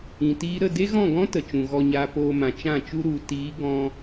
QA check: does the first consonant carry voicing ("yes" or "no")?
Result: no